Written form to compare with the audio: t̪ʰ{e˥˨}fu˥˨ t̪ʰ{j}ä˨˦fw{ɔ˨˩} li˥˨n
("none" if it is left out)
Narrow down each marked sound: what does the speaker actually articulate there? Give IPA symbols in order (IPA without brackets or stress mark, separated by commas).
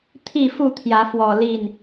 i˥˨, j, ɔ˨˩